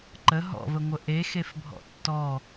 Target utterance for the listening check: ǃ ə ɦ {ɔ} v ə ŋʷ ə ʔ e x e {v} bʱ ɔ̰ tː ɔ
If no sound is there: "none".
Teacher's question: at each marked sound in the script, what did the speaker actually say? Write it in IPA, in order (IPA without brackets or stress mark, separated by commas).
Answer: ɔ̰, f